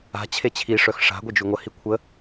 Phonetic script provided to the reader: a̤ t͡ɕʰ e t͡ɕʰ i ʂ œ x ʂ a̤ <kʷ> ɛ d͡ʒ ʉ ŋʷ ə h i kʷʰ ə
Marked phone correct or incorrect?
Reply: incorrect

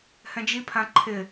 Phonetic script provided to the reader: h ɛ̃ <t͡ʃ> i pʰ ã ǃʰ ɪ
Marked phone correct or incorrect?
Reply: incorrect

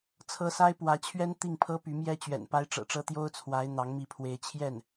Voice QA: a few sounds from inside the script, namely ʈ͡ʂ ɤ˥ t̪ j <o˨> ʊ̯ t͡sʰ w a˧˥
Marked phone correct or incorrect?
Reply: incorrect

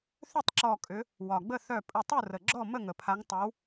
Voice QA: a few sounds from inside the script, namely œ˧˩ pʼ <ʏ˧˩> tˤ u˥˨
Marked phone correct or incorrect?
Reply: incorrect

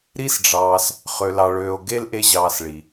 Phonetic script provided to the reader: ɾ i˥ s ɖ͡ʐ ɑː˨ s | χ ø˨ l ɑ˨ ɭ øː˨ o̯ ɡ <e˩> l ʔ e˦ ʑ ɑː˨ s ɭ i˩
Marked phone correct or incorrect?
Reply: incorrect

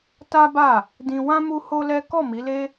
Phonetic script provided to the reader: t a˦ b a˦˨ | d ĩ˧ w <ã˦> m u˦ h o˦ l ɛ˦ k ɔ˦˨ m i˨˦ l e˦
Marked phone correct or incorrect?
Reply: correct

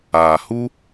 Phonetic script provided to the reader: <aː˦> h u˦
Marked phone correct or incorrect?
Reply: incorrect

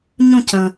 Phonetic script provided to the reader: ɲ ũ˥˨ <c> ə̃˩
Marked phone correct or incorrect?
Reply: correct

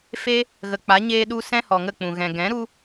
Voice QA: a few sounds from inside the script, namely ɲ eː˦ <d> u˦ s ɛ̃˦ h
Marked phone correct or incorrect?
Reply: incorrect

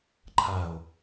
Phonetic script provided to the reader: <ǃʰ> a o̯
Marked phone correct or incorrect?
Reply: correct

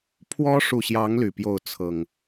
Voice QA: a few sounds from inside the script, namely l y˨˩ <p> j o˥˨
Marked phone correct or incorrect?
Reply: correct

